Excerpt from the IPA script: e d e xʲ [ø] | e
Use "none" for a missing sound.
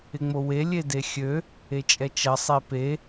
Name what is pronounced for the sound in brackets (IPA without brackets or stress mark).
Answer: ø